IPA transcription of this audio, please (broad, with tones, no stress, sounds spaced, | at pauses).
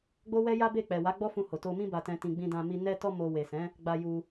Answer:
ɡ͡b o˦ w ɛ˦ j a˦ b e˦˨ k͡p ɛ˨ w a˨˦ ɡ͡b ɔ˦ f ũ˧ h o˨ t o˧ m ĩ˧ b a˨ t ɛ̃˨ t ĩ˨ ɡ͡b ĩ˧ d ã˧ m i˧ n ɛ˧ t ɔ˧ m o˨ w e˨ s ɛ̃˨˦ | ɡ͡b a˧ j u˧